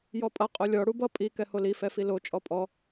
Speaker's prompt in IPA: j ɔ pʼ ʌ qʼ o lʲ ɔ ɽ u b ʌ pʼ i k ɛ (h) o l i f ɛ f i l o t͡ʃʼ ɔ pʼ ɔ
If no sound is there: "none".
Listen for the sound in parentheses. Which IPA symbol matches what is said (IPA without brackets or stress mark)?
h